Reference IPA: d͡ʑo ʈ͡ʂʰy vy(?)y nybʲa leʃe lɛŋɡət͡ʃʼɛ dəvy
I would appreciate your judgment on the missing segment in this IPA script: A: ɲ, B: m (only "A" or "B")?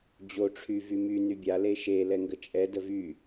B